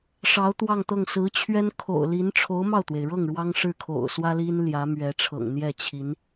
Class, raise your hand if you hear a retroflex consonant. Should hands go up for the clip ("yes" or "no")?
yes